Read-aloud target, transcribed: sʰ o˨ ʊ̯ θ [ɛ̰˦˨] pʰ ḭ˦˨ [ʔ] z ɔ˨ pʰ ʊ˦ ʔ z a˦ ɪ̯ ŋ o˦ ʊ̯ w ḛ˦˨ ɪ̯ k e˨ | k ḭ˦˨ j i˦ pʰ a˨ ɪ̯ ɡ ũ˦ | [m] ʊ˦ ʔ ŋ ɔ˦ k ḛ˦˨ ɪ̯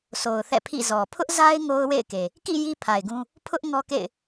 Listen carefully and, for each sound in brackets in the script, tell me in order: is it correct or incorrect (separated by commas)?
correct, incorrect, incorrect